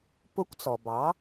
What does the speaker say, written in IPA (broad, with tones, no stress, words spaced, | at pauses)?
pʊ˧˥kʷt͡sɔ˩bɑ˩˥